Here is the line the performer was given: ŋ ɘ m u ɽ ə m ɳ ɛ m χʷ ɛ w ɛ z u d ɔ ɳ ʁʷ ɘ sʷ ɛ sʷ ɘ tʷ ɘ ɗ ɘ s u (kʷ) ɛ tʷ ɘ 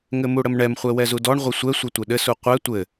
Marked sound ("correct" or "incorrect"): incorrect